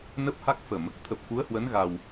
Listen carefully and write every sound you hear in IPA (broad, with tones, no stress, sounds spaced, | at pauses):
n ə˦˥ p̚ h a˦˥ k̚ f ə˧˩˨ m | t̪ʰ ə˨˩ p̚ f u˨˦ ə̯ h w ə˨˦ n ɣ a˨˩ w